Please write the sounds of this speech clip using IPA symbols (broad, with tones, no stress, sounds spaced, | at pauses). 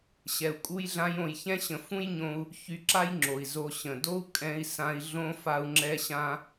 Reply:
ɕ ɛ˨ u̯ kʼ u˦ j ɮ ã˦ j õ˧ j ç ɛ̃˦ ɕ ə̃˧ f ũ˦ j ɲ õ˧ u̯ | ç y˧ ǁ a˦ j ŋ͡ǁ o˨ i̯ z o˧ ɕ ə̃˨ d o˦ u̯ kʼ ɛ̃˦ i̯ s ã˦ i̯ ɮ õ˦ f a˦ u̯ ŋ͡ǁ ɛ˦ ɕ ã˦